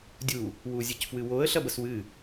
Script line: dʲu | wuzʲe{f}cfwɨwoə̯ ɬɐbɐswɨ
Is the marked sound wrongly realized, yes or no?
yes